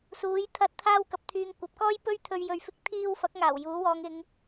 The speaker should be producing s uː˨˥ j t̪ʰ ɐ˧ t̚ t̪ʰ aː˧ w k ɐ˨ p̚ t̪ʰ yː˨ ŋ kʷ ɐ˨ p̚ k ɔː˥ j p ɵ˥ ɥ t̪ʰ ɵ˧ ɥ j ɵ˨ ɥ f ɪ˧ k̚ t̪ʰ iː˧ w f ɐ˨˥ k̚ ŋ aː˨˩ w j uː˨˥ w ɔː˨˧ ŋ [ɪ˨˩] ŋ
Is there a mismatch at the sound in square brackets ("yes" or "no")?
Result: yes